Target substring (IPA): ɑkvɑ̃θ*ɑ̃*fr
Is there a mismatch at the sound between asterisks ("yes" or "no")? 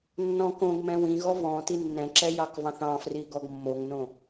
no